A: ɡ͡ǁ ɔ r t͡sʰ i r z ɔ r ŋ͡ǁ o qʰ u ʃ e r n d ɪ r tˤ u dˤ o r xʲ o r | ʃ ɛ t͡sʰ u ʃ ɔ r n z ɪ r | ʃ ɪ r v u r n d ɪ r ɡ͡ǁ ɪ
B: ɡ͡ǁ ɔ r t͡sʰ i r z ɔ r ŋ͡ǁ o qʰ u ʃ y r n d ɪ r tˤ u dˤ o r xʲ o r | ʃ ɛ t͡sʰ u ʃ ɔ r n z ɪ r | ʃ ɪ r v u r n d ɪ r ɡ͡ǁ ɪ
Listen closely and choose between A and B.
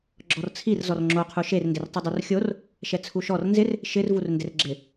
A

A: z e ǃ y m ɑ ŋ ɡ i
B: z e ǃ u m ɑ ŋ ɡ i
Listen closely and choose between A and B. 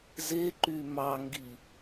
A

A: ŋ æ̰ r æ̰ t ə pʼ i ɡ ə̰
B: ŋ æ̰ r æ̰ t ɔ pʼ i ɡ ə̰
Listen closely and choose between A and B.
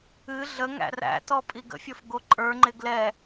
B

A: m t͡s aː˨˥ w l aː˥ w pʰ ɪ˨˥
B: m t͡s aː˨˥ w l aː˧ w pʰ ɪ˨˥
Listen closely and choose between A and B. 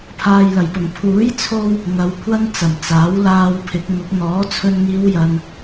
B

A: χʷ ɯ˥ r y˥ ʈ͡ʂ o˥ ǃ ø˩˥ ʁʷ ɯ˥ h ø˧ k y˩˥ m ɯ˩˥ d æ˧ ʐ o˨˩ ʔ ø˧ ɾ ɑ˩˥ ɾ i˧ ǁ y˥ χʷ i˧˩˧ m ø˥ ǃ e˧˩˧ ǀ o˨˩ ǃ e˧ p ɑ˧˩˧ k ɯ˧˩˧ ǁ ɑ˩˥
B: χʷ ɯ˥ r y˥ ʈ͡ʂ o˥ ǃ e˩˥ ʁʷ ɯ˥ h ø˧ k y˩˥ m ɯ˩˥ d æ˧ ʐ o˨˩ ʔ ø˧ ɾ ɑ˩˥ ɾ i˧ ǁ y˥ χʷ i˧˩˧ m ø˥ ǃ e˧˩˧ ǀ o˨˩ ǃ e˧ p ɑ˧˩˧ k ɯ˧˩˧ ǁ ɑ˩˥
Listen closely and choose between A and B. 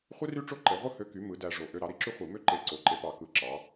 B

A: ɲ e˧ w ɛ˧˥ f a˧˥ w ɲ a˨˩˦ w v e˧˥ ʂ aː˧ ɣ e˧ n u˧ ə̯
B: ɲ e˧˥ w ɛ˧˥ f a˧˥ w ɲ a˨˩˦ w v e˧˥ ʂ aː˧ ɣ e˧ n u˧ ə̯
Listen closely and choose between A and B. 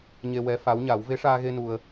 A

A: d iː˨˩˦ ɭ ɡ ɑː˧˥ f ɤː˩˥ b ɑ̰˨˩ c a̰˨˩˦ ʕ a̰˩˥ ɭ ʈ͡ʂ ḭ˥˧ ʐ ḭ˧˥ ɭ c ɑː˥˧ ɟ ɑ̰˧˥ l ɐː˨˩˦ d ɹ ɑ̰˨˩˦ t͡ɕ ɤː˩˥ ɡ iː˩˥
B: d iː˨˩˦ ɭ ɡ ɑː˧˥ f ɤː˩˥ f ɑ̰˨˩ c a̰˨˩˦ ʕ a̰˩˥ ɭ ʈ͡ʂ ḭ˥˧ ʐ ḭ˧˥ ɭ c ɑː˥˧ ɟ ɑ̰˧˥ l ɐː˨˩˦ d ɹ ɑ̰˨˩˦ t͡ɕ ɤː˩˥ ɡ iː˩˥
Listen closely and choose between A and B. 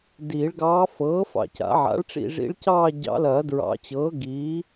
B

